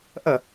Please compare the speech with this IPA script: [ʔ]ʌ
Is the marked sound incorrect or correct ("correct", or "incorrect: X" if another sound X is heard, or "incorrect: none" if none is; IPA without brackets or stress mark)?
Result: correct